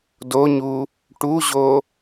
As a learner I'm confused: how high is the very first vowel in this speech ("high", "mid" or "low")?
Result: mid